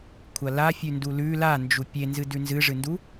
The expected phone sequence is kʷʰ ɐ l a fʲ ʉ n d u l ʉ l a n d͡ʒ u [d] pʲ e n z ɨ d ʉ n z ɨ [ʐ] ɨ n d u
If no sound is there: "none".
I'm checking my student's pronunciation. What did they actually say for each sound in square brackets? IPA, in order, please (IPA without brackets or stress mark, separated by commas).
none, ʐ